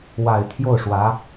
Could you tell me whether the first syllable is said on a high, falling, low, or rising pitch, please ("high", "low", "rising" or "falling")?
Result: low